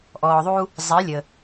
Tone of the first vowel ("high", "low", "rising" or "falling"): low